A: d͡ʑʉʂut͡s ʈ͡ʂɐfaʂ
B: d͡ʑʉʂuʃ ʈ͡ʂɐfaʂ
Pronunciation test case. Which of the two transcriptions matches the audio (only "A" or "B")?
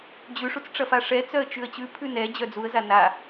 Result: A